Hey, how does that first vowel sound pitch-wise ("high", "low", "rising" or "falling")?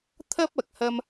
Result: high